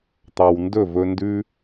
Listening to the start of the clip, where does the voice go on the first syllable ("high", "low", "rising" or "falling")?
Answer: low